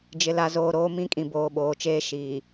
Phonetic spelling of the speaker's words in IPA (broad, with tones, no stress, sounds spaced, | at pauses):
d͡ʒ ɪ˨ l a˨ z oː˨ ɾ oː˦ m ĩ˦ kʼ ĩ˨ b oː˨ ɓ oː˨ t͡ʃ eː˦ ʃ iː˨